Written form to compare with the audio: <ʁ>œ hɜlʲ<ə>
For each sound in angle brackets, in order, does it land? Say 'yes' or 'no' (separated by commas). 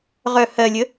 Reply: yes, yes